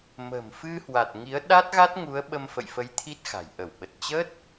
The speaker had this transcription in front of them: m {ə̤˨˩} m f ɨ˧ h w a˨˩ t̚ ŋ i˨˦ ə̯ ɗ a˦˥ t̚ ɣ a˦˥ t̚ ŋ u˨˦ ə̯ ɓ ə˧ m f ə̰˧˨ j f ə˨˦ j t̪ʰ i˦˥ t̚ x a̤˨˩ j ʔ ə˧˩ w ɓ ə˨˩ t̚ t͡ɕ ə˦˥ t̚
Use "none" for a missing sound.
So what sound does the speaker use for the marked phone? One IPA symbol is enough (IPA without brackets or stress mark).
ə̤˨˩